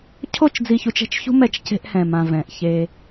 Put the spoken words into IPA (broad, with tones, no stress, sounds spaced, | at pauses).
cʰ o˦˨ t͡ʃ d͡z i˨ ç u˦ t͡ʃ ɛ̤˦ t͡ʃ ç ṳ˦ m ɛ˦ t͡ʃ c e̤˦ ʔ h ɛ̃˨ m ã˨ v ɛ̃˨ ʔ ç e˦